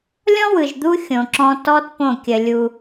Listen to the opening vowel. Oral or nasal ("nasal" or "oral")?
nasal